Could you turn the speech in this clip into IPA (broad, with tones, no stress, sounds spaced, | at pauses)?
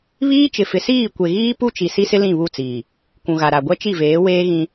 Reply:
β iː˦ t͡ʃ ɪ˨ f ɪ˨ s iː˦˨ kʷ e˨ ɣ iː˦ p u˦ t͡ʃ i˨ s i˦ s ɪ˦ l ĩ˦˨ β u˦˨ t͡s iː˨ | kʷ ũ˨ ɣ a˨ ɾ a˨ ɡʷ ɛ˦ t͡ʃ i˦˨ v eː˨˦ w eː˦ ɣ ĩ˦